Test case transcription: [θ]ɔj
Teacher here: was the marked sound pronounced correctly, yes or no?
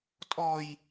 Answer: no